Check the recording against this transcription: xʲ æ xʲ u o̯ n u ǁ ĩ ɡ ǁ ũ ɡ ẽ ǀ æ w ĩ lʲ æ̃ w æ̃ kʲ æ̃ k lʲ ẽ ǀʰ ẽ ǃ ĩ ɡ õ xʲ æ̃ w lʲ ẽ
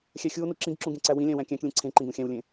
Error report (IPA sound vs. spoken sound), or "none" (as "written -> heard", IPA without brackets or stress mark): none